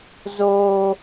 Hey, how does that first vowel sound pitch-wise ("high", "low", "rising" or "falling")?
high